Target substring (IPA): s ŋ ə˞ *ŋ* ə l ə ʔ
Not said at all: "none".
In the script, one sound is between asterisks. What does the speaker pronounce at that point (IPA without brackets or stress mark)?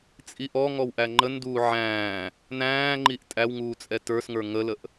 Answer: ŋ